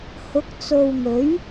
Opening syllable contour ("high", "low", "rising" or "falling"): rising